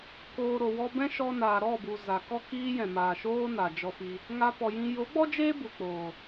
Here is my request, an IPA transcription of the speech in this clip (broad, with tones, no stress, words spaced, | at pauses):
koː˨ ɾo˨wɔ˧bɛ̃˦ ʃɔ˧naː˨ ɾɔ˦˨bu˨ za˨kɔ˦kiː˦jɛ̃˨ maː˨ʃoː˦ na˨d͡ʒɔ˧fi˧ | ŋa˧pɔ˨jĩ˧ jo˨˦ɡ͡bɔ˦d͡ʒeː˦ bu˨k͡poː˨